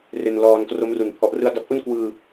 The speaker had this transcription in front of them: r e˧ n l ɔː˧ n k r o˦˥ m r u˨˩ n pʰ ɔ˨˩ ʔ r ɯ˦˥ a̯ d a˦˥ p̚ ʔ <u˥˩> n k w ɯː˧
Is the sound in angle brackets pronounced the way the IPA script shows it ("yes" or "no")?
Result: yes